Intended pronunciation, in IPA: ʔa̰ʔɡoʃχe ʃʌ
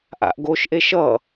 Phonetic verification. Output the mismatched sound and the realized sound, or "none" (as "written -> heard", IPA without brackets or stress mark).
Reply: χ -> ʔ